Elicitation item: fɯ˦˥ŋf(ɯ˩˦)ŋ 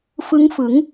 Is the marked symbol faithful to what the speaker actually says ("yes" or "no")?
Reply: yes